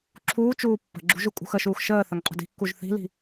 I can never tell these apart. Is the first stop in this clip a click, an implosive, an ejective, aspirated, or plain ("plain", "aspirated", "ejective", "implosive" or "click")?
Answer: click